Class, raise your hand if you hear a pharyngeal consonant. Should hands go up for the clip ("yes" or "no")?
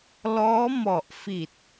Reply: no